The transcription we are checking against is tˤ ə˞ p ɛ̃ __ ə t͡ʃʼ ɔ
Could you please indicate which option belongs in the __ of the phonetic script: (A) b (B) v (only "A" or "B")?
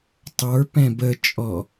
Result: A